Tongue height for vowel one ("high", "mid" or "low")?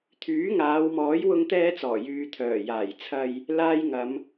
high